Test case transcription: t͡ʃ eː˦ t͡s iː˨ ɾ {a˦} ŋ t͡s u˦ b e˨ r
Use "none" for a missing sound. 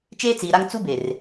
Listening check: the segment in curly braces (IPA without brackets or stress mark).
a˦